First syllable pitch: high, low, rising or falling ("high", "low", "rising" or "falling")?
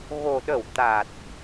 low